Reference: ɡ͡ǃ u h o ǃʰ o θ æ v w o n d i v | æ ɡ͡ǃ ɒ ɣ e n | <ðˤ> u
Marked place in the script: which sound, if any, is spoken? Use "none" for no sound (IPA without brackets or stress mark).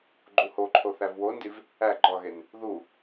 ð